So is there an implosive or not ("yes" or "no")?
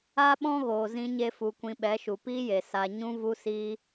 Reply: yes